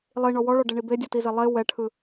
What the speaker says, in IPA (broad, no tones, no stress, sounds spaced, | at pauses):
lˠ i ɳ ɔ w ɔ ɭ ɔ ɖ e ɳ i b e dʲ ɔ t i z e lˠ e w ɛ ʈʰ ɯ